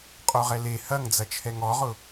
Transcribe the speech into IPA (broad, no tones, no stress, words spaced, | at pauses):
qʼoʁɛle hɐŋd͡zɐ t͡ʃʰɛŋɔʁʊ